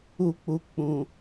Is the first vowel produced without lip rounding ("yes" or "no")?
no